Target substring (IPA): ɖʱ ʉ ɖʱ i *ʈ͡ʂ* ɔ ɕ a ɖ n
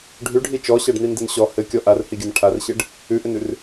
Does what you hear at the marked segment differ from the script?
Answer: yes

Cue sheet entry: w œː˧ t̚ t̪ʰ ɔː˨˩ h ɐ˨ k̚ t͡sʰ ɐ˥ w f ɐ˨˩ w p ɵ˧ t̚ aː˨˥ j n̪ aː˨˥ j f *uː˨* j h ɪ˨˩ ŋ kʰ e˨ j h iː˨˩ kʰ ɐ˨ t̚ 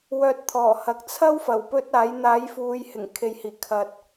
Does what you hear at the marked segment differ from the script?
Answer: no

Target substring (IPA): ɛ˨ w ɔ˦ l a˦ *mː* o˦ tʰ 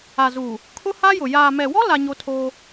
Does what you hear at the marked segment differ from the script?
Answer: yes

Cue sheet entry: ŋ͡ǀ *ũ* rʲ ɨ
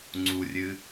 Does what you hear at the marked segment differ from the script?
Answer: yes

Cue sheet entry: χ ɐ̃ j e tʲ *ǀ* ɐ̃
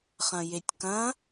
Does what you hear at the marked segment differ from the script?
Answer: yes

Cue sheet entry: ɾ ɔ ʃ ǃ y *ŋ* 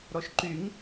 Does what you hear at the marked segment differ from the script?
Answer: no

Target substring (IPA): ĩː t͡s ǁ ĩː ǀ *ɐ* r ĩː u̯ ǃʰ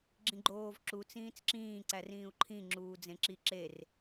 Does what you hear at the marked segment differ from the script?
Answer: yes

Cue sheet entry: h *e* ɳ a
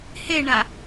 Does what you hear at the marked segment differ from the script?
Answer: no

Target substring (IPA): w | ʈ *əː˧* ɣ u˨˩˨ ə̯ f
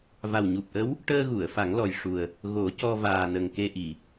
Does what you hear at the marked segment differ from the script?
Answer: no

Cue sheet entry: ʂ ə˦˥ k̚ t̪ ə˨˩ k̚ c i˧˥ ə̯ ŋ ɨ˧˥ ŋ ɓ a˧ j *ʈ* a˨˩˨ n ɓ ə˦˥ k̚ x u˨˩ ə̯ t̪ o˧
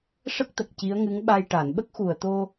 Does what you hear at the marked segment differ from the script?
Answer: no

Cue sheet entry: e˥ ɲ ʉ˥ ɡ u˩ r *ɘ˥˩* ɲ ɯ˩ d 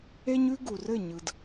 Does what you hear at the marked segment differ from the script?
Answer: no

